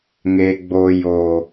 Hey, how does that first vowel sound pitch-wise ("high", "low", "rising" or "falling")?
low